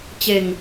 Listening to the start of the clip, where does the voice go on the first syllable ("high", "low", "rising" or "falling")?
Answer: falling